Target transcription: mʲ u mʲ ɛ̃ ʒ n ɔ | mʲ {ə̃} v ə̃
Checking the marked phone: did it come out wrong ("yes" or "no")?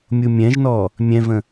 yes